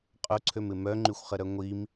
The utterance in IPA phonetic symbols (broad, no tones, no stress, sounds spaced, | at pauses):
qʼ ʊ ǀʰ ø m ɪ m œ ŋ͡ǃ y xʷ χ ə ɾ œ ŋʷ i m